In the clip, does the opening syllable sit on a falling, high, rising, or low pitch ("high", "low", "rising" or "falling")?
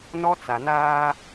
high